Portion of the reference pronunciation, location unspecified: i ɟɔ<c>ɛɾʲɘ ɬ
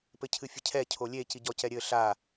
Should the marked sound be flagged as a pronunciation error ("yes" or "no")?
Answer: no